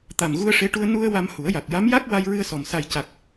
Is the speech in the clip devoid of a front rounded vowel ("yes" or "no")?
yes